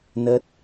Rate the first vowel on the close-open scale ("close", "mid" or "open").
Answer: mid